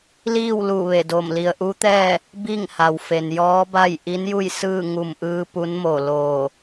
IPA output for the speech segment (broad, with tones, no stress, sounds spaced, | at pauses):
l iː˥˨ w l u˧˩ ʋ e˧˩ d o˧˩ m l i˩ ə̯ ʔ u˧˥ t̪ ɛː˥˨ | b i˥˨ ŋ h a˩ w f e˩ n j ɔː˧˥ b a˥˨ j ʔ i˧˥ n j u˥˨ j s ɯː˥˨ ŋ u˧˩ m ʔ ɯː˧ p u˧˥ n m o˧˩ l oː˧˩